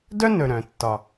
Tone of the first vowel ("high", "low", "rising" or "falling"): high